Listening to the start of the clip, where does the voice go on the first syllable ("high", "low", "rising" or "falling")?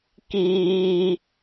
high